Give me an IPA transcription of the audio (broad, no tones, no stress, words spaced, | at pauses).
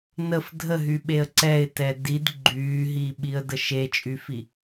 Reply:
nəf dʱəɦyɓeə̯ ǀɛɪ̯tɛ did ɡ͡ǃyːɦiːɓiə̯də ʃet͡ʃʼyfi